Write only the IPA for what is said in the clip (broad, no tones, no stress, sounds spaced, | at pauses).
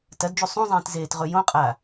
t ɐ d d͡ʒ u sˤ ũ zˤ ẽː t z eː t ʁ ɵ j õ qʼ a